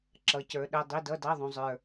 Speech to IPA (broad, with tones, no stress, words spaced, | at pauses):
ǁʌ˨˥cə˞˨˥ɗə˧˥˧ dˤi˧˥˧dʌ˧˥˧dɑ˧˥˧ðˤũ˨ zˤə˞˨